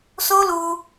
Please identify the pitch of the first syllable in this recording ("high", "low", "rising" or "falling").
high